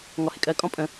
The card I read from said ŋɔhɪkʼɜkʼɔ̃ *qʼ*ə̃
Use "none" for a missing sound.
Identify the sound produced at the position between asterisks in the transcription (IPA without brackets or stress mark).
pʼ